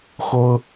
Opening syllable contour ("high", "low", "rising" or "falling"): high